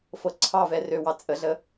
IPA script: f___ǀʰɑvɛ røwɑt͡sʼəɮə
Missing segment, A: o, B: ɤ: B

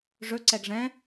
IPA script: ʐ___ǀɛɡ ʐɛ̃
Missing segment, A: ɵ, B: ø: A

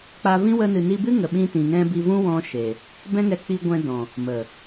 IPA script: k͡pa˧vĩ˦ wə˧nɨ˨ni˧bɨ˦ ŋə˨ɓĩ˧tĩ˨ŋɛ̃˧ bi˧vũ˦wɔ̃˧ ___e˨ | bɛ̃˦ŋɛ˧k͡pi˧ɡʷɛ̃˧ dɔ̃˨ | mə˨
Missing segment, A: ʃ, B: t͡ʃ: A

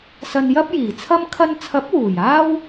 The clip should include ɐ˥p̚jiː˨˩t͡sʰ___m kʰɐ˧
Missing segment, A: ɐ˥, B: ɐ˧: A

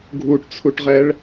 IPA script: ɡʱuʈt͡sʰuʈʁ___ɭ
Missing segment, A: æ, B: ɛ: B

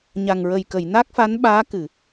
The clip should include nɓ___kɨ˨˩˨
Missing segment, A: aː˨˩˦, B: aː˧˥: B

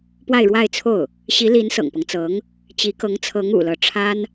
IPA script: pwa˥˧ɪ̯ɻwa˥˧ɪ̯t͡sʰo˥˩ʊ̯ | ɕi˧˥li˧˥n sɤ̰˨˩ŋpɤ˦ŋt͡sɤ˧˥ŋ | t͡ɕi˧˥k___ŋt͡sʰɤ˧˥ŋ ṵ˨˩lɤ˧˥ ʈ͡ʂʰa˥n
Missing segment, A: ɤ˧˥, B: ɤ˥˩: A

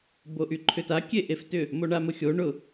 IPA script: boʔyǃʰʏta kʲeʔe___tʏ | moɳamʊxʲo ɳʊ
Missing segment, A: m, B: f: B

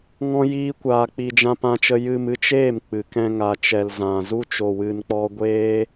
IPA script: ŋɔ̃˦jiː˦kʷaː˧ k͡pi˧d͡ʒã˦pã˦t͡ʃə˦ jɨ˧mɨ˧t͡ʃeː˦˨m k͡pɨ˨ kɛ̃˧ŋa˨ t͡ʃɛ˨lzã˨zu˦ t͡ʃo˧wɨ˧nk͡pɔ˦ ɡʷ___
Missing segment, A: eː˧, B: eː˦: B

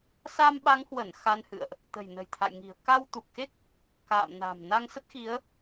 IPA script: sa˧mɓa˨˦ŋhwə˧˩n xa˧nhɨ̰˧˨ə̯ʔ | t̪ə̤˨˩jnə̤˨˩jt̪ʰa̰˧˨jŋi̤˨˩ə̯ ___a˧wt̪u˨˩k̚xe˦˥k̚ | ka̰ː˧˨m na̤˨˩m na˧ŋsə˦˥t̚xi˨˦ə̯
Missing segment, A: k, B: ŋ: A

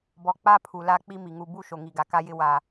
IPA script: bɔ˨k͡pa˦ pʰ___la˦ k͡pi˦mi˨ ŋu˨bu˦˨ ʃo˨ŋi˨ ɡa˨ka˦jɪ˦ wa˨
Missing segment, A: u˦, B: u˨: B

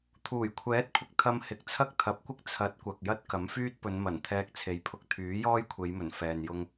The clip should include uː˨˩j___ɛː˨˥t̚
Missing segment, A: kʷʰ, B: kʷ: A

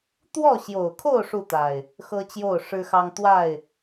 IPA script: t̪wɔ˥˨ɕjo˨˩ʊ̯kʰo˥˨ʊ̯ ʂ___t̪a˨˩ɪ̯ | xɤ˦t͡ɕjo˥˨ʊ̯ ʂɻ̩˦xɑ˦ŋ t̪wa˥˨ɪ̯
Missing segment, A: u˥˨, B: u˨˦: A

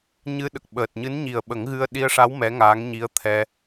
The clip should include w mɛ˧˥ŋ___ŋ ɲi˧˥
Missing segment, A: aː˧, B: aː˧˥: B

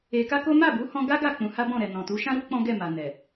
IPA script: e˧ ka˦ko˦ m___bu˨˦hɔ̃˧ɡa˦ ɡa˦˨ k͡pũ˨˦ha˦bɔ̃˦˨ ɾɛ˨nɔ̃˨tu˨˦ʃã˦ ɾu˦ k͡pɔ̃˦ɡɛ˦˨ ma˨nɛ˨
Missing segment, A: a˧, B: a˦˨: B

